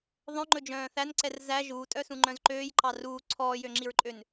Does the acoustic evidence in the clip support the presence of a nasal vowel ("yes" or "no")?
yes